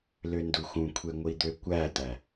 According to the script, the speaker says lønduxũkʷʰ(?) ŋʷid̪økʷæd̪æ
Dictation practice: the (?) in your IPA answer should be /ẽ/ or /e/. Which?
e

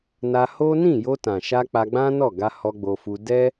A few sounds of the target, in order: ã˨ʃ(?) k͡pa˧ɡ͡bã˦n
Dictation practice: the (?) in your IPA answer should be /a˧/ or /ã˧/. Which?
a˧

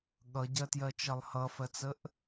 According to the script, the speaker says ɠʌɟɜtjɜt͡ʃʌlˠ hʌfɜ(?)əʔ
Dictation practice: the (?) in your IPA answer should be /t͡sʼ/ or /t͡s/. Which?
t͡s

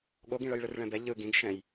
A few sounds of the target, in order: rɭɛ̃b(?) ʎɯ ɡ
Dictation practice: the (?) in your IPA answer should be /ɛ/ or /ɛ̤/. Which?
ɛ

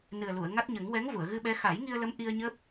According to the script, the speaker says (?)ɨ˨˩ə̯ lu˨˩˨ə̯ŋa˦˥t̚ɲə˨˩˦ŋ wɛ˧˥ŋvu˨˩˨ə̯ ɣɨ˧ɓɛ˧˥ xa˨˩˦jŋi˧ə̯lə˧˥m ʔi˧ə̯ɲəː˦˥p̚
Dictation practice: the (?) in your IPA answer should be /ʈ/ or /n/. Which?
n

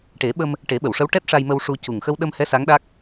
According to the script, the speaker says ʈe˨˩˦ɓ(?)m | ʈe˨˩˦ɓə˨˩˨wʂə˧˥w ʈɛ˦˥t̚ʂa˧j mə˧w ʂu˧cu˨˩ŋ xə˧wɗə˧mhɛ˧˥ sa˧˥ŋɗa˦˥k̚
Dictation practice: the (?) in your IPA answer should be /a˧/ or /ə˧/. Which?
ə˧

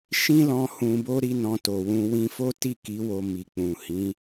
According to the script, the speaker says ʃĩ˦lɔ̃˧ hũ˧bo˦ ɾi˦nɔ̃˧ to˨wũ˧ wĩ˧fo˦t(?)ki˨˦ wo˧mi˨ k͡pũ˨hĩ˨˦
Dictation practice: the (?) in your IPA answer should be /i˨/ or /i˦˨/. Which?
i˦˨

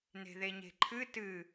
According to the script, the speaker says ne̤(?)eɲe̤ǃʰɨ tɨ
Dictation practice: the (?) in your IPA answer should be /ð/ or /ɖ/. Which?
ð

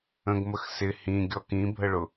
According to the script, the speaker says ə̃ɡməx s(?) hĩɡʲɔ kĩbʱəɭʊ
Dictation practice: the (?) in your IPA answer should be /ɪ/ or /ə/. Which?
ɪ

